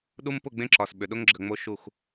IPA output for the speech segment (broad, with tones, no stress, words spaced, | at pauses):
ɗu˦mpʊ˦˨ɡ͡bẽ˦ǁɒ˨s ɓʏ˨ ɗʊ˦ŋɡ͡ǁə˨ŋ͡mo˦ ʃu˦˨x